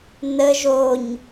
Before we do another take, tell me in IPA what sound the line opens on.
n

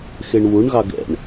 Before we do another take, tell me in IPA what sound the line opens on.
x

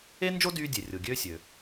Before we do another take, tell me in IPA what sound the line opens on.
e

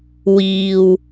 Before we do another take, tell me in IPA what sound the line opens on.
w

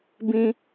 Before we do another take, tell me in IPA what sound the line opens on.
b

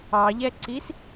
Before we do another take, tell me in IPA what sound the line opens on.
ɑ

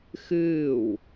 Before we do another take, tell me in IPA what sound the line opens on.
x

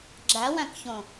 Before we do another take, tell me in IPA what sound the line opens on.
ɡ͡ǁ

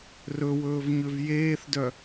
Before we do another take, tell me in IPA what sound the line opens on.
r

